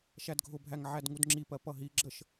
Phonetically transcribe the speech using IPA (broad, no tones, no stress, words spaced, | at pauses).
ʃædɡʱʊbʱæŋ ʕædŋudŋ͡ǁipɜ pʌɦiɡ͡ǁəʃ